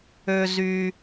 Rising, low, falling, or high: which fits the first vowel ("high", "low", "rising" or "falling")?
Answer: low